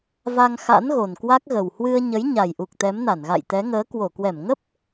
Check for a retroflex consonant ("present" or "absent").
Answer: absent